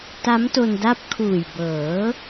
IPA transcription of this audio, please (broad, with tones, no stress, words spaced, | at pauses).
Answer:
ta˦˥mto˧nda˦˥p̚ kʰuː˨˩jbɤː˩˦